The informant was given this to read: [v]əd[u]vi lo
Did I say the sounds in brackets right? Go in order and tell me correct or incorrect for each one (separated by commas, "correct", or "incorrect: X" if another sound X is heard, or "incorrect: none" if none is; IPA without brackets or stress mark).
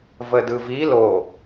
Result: correct, incorrect: ɯ